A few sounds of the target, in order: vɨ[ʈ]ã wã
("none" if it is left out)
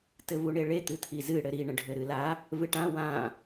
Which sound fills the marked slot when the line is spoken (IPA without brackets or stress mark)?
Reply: ʈ